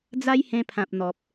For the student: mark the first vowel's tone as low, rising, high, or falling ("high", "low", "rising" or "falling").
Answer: high